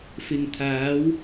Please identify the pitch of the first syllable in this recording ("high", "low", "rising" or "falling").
low